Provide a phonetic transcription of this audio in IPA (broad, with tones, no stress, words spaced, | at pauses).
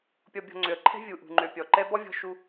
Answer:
pʲɔ˨ bʲɔ̤˨ŋ͡ǀø˩ə̯ǃʰɛ̤˥ vʲu˩ʔṳ˩ ŋ͡ǃø˩pʲɔ˩ǃɛ˦ bɔ˥vʲɔ̤˦ ʃu˦